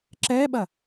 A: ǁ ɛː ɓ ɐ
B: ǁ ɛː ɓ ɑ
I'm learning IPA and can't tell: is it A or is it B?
A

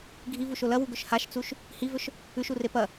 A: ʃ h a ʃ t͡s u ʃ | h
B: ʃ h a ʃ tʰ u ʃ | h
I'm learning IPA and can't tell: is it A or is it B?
A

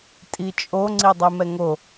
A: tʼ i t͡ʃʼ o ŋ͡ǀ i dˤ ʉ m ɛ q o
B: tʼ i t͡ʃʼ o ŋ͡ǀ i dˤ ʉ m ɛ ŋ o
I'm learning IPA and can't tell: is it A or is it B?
B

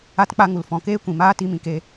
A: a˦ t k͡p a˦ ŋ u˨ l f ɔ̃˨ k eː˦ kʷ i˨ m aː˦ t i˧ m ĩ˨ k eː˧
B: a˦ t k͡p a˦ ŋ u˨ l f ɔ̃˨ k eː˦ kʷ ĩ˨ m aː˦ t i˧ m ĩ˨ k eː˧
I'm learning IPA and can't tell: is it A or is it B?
B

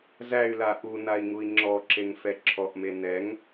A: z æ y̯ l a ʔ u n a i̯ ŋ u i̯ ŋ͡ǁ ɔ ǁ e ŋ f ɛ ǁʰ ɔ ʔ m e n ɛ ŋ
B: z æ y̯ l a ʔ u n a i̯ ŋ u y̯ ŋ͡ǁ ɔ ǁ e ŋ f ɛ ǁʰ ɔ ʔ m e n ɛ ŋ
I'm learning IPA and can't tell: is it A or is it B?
A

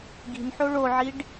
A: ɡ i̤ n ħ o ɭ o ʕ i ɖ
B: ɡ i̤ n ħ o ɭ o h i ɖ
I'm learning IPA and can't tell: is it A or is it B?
A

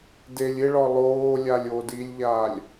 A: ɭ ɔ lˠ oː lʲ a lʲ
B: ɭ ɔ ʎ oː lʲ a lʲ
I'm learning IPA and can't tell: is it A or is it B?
A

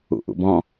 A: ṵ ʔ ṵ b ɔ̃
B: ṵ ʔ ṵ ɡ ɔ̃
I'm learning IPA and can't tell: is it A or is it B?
A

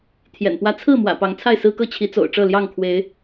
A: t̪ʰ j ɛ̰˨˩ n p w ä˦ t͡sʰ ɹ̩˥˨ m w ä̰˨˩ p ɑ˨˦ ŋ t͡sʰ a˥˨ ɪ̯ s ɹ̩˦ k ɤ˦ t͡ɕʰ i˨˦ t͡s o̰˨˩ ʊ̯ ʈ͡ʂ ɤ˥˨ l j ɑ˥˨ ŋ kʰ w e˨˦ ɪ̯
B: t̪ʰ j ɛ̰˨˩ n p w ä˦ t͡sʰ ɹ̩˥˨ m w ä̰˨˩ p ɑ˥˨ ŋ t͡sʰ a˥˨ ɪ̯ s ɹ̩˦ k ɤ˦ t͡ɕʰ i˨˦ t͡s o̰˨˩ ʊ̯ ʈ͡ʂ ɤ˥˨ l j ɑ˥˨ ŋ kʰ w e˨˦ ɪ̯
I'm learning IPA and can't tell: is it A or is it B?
A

